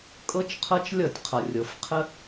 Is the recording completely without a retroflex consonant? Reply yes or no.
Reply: yes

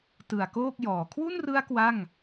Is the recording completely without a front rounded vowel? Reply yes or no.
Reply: yes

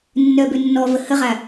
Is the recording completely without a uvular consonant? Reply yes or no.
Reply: no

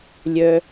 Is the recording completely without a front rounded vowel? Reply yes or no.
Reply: no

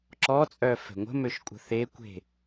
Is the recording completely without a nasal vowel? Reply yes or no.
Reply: yes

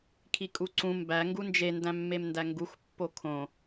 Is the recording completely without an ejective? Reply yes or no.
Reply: no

